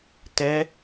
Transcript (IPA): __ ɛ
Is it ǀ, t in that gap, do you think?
t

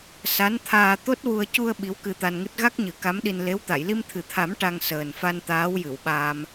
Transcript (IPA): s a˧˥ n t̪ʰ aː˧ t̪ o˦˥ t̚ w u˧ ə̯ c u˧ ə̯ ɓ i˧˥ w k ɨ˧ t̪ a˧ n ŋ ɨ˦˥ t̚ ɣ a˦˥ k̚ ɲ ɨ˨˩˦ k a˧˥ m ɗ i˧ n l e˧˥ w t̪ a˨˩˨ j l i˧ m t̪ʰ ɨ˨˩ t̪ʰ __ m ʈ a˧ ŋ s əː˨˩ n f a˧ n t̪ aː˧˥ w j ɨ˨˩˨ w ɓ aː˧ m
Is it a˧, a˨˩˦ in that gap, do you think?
a˨˩˦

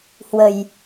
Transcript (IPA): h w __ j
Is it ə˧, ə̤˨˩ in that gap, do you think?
ə̤˨˩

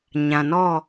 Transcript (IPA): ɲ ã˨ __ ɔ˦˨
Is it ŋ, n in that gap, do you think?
n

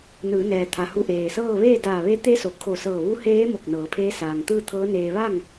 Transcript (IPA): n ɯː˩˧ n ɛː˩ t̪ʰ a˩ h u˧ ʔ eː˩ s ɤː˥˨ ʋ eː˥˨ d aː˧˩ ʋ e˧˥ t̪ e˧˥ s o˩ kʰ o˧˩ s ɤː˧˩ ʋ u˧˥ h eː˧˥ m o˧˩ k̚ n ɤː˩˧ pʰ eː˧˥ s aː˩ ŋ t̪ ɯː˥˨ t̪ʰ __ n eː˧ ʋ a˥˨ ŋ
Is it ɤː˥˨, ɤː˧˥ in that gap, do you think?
ɤː˧˥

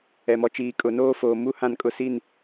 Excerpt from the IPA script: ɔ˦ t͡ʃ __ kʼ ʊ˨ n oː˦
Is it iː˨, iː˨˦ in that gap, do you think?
iː˨˦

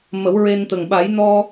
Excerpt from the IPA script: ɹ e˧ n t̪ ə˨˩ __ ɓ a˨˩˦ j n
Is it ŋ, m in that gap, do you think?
ŋ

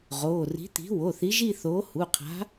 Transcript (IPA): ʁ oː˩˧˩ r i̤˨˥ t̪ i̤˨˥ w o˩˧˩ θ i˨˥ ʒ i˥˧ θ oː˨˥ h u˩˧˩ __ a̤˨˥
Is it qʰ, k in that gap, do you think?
qʰ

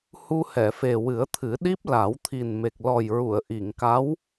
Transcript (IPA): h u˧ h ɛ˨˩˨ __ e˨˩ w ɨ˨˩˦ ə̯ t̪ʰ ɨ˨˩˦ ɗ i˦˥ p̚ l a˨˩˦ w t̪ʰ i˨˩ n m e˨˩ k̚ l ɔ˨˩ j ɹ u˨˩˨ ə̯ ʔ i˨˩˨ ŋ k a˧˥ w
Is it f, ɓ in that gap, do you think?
f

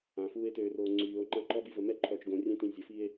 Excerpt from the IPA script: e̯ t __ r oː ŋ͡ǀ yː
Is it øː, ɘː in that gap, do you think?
øː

